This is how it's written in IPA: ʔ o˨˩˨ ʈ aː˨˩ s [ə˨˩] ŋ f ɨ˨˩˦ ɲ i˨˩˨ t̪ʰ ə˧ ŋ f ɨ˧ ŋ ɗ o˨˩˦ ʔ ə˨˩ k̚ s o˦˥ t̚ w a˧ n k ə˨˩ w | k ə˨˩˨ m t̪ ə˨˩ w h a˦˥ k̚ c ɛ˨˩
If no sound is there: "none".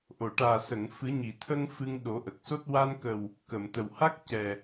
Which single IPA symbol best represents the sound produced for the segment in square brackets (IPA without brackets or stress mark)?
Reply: ə˨˩˨